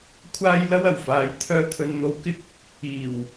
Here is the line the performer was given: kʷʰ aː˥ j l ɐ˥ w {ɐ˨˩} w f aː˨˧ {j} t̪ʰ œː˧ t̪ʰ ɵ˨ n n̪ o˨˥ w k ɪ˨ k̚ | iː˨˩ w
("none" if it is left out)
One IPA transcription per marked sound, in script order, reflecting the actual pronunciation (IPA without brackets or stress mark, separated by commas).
ɐ˨˩, j